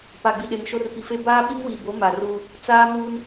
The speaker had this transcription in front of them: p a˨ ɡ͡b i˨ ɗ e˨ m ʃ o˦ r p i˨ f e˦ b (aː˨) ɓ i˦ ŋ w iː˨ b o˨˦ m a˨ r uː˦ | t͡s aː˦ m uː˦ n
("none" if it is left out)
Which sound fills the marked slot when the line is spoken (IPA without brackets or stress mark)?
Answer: aː˦